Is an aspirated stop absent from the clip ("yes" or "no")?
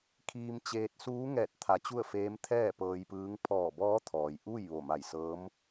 no